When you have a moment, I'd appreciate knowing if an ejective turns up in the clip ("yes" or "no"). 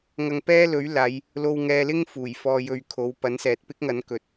no